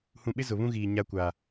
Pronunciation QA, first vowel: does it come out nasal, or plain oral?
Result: nasal